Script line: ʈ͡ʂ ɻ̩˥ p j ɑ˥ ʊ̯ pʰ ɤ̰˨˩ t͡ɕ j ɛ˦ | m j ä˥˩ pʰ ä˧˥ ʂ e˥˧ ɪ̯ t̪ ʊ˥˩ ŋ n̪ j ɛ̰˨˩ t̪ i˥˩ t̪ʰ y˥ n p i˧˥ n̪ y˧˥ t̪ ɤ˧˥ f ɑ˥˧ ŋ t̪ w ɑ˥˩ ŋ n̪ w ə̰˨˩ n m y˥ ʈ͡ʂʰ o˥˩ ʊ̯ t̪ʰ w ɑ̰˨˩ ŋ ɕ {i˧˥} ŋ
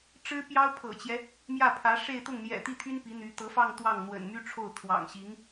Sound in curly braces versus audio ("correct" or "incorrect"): correct